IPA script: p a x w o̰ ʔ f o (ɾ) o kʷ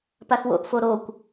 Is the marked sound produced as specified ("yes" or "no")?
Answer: yes